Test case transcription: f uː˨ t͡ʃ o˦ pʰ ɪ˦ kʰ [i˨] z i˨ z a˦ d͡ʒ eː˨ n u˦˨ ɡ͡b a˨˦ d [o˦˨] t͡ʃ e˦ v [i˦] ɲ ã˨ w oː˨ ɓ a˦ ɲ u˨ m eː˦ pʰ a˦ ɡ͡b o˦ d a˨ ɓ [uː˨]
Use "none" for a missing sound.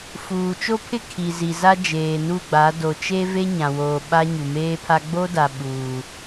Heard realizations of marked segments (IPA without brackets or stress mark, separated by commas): i˨, o˨, e˦, uː˨